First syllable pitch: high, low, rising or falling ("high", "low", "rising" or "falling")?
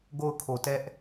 falling